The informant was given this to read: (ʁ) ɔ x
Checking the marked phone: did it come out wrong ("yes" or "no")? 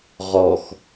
no